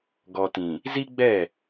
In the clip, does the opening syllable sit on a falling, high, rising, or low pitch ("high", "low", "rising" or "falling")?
low